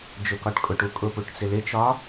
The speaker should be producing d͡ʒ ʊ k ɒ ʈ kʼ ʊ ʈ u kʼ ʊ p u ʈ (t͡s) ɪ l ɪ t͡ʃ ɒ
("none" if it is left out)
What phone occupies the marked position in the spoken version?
t͡s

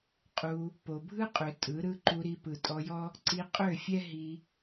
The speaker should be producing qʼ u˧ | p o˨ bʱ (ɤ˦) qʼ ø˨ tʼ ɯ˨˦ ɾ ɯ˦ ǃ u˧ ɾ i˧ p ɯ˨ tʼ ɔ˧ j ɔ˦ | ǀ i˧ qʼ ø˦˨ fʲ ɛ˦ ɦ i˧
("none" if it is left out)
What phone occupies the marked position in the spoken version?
ɯ˦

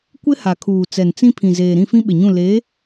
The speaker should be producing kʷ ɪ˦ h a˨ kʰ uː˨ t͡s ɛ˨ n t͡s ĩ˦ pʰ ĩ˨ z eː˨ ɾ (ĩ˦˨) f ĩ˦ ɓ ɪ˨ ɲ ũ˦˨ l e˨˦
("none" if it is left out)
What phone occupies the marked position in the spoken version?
ĩ˦˨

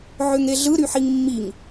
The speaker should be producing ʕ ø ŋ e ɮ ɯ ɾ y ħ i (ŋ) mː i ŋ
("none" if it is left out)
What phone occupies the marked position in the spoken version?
ŋ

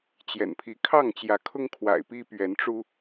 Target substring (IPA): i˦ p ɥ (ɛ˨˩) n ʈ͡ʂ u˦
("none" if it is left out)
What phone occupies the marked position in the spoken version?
ɛ˨˦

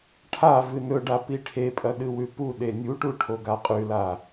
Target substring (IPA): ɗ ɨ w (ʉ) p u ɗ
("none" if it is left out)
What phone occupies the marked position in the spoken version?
ʉ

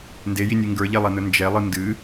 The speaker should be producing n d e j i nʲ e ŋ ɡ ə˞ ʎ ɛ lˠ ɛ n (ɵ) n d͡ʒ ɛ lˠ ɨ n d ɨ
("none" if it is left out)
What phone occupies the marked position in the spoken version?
ɵ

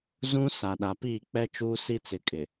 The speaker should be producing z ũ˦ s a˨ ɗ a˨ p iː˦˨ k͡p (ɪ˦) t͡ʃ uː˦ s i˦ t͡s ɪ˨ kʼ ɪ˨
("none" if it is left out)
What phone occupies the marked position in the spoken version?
ɛ˦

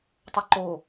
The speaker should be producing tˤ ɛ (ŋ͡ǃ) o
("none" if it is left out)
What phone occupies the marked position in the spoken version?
ǃ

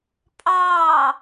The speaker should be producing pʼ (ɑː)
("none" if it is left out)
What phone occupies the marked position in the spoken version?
ɑː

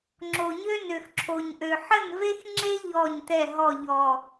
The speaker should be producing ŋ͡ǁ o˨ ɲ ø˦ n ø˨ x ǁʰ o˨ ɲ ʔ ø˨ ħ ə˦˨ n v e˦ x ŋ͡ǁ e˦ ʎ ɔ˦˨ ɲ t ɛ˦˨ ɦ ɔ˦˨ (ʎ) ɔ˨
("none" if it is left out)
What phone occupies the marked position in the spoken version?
ʎ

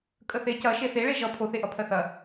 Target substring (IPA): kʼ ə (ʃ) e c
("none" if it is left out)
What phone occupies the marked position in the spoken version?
θ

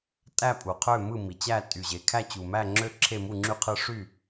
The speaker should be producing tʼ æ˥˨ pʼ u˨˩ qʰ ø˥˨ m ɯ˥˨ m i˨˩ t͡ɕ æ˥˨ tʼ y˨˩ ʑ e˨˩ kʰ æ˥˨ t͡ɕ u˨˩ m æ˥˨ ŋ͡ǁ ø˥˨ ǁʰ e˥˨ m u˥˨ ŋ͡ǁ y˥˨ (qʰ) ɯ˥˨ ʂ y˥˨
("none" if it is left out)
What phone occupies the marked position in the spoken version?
qʰ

